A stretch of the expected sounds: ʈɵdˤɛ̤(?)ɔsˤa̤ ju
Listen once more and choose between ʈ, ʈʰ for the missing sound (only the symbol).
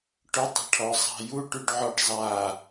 ʈʰ